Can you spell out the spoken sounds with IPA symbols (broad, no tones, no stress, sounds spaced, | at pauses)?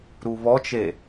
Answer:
ɾ u β ɔ t͡ʃ e